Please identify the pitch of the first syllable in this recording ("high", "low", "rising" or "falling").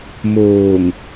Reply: low